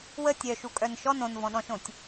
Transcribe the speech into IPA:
w ə tʲ œ ʃ u kʼ œ n ʃ ɔ n õ n v ɔ̃ ɗ ɔ̃ ʃ õ tʲ

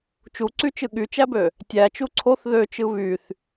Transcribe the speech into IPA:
t͡ʃ u ǀ y t͡ʃ ɯ ɠ y t͡ʃ æ b ø | tʲ æ t͡ʃ u ǀʰ o θ ð ø t͡ʃ ɯ β y θ

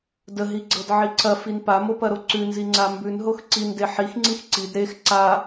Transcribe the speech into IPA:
d ə ɦ i ɡ͡ǀ ɤ d ʕ i ǀ ɐ f i n p a m o p ɐ ɾ o ǀ ʉ n z i ŋ͡ǀ a m b ʉ n ɦ o x ǀ i n d e ħ i x ŋ͡ǀ i x ǀ i d ɾ e x ǀ a

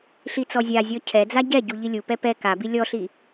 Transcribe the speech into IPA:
ɬ i t͡s ɔ zʲ a zʲ ɔ cʰ ɛ d͡z a ɟ ɛ ɟ u ʎ i lʲ u p ɛ p ɛ k a b i lʲ ɔ ɬ i

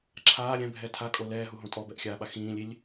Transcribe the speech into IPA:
ǁʰ aː ɾʲ ɛ̃ bʱ ɛ tʰ a kʼ o l ɛː ɦ u ɦ õ tʼ ɔ b ɛ ʔ xʲ aː ɓ a x ĩː lʲ i lʲ

